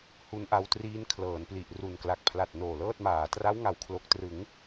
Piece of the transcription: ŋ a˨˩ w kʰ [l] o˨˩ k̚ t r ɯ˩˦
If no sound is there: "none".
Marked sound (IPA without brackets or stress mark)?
l